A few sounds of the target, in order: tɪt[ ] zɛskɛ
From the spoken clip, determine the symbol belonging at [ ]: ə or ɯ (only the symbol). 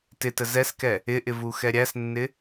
ə